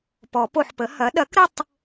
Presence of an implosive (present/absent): present